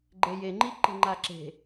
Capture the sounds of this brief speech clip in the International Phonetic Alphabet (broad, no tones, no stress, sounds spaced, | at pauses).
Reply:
ɡ͡ǃ e j e ŋ͡ǃ i ǃ e̤ ŋ͡ǃ a ǁ e̤